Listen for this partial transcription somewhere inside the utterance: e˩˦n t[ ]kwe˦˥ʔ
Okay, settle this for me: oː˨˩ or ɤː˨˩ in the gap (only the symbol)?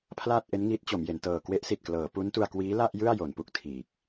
ɤː˨˩